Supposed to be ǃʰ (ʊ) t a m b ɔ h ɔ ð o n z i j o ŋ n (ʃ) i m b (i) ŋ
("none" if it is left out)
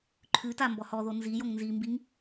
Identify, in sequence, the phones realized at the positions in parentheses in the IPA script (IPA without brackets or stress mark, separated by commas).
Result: ʉ, z, i